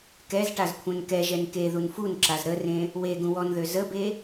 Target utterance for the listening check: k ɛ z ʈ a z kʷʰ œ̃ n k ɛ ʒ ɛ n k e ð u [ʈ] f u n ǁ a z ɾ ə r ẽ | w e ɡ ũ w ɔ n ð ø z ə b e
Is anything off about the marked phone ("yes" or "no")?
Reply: yes